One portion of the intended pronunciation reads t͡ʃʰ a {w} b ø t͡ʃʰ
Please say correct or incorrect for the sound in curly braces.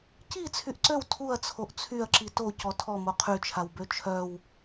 correct